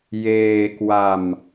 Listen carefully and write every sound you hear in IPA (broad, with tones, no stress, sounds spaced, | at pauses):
j eː˧ k w a˧ m